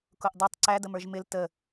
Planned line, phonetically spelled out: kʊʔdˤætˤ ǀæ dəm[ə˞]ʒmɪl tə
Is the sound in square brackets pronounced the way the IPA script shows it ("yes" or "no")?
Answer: yes